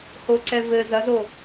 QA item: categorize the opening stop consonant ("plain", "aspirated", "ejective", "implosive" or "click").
click